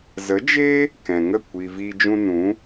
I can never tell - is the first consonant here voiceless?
no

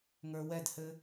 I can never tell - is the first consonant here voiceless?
no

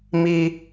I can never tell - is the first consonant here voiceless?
no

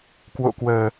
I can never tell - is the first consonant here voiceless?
yes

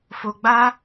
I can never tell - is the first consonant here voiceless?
yes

